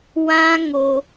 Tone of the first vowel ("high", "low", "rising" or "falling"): high